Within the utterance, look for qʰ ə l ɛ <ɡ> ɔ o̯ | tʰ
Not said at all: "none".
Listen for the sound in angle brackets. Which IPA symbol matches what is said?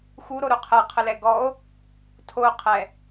ɡ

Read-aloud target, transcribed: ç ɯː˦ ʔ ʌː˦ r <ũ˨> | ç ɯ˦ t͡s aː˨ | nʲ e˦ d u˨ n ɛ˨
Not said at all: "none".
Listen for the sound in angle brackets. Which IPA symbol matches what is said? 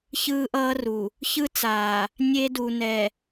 u˨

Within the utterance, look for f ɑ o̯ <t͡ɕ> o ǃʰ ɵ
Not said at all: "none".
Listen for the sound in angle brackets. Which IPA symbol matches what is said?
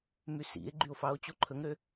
t͡ɕ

